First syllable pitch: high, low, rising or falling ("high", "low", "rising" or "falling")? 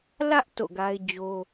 high